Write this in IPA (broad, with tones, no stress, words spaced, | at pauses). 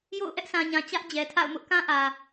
jo̰˦˨ʊ̯ ʔɛ˦ʔsʰã˨ɲã˨ t͡ɕä˦ʔd͡ʑɛ˨tʰa̰˦˨ʊ̯mʊ˦ʔ kã˦ʔä˨